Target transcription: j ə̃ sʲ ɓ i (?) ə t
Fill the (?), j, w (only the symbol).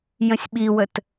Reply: w